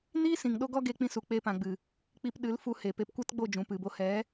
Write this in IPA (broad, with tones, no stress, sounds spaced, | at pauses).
n i˦ s ĩ˨ ŋ ɗ o˦ ɡ ɔ˦ ɡ e˧ k͡p ĩ˧ s u˨ k͡p e˧ p ã˨ ɡ͡b ɨ˨ | k͡p i˧ p ɗ ɨ˨˦ l f u˧ h e˨ p e˧ p kʷ ɛ˦ t ɡ͡b o˦˨ d͡ʒ ũ˨ p ɨ˨ b o˧ h ɛ˨˦